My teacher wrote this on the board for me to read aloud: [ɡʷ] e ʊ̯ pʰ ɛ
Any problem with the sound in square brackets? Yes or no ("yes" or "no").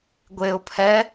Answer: no